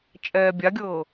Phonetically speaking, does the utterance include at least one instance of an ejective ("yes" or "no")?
yes